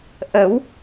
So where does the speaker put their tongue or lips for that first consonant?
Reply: throat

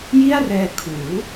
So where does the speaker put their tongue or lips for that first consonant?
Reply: palate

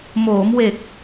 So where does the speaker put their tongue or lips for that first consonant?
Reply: lips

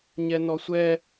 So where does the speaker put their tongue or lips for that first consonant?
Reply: palate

